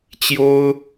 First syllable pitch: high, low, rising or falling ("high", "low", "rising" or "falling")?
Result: high